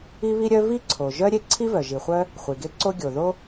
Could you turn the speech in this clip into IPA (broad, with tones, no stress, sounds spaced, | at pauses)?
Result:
i˥ β i˥ ɾʲ œ˥ v i˥ ǀʰ o˩ ʒ œ˥ ɾʲ e˥ ǀʰ i˥ v œ˩ ʒ i˩ χʷ œ˥ | χʷ i˩ ɡ e˥ ǀ o˥ ɡʲ o˩ ð o˥